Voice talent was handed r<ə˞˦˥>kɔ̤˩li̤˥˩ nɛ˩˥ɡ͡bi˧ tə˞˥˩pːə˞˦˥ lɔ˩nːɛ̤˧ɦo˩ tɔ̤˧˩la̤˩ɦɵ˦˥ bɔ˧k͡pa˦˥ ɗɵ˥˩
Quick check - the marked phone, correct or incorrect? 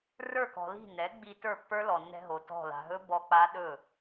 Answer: incorrect